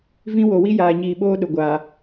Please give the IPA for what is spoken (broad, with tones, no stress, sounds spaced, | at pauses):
v ĩ˦ w o˨ w i˦ j aː˨ ɲ iː˨ ɓ oː˦ ɗ ʊ˨ ɡʷ aː˨